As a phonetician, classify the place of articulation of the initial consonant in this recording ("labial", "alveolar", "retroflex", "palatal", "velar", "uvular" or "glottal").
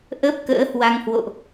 glottal